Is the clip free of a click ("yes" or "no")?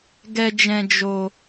yes